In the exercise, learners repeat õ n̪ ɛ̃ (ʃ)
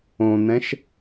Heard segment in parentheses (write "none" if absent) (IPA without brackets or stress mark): ʃ